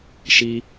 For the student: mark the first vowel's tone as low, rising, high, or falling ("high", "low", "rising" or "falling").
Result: high